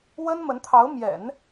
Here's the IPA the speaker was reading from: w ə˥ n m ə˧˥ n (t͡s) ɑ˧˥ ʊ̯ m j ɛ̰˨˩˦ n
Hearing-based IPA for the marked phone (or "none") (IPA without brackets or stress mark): t̪ʰ